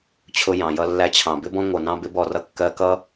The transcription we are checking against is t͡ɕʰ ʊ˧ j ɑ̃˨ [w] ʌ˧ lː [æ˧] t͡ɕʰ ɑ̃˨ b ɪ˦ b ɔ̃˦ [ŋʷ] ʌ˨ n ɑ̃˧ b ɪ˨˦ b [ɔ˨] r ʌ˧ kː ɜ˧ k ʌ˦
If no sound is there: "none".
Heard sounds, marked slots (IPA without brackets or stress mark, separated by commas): j, æ˧, ŋʷ, ɔ˨